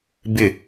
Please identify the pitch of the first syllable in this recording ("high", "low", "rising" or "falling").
falling